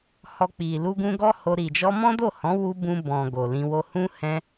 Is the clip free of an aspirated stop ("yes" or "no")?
yes